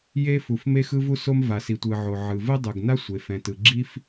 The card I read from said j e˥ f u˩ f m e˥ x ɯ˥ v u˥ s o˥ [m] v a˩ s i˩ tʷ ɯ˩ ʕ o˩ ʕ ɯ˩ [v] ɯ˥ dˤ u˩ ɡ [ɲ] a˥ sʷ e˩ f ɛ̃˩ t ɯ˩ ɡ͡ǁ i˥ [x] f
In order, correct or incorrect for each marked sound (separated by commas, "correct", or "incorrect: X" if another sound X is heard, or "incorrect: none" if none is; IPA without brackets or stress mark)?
correct, correct, incorrect: n, incorrect: none